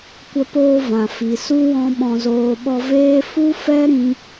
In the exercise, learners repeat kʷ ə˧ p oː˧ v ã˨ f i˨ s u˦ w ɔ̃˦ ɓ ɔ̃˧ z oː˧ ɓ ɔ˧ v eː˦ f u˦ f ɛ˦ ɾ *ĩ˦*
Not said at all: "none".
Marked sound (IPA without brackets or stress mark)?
ĩ˦